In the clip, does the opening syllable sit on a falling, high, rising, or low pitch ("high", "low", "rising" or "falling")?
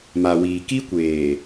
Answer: low